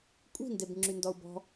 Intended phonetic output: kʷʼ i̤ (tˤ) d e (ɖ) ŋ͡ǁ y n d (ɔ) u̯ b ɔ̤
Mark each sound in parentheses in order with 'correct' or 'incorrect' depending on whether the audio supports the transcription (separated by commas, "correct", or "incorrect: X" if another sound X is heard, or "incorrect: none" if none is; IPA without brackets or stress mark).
incorrect: n, incorrect: b, correct